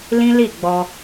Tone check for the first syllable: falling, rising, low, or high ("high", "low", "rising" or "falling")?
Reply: high